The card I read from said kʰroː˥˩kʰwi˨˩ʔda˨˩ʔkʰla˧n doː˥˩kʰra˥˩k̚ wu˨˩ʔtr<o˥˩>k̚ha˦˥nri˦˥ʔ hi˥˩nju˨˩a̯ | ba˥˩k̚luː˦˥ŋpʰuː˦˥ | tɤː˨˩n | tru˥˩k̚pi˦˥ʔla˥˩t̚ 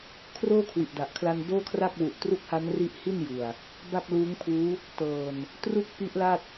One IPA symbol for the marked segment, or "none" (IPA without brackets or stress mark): u˥˩